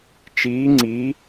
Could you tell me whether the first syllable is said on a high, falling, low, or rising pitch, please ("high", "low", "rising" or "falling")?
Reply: rising